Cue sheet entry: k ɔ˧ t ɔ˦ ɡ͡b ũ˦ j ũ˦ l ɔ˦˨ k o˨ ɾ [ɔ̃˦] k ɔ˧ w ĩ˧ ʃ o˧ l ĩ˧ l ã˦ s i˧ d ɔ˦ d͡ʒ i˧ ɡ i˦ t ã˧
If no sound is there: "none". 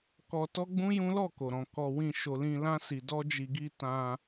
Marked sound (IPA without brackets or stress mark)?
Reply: ɔ̃˨